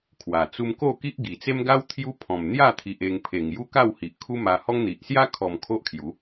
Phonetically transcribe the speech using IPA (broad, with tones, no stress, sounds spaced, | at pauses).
kʰ w a˨˩ t͡s u˧ m k o˥˧ k i˦ ʔ ɡ i˨˩ t͡s e˦ m ɡ a˦ w t̪ʰ j u˦ pʰ ɔ̃˨˩ m n̪ j a˥˧ t̪ʰ i˨ ʔ e˧ ŋ pʰ e˨˩ ŋ j u˦ k a˥˧ w h i˨ ʔ kʰ u˦ m a˧ h ɔ˦ ŋ n̪ i˨ ʔ s j a˦ kʰ ɔ˨˩ m kʰ o˦ ʔ kʰ j u˨˦